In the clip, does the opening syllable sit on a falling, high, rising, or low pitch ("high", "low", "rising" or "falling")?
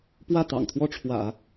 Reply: falling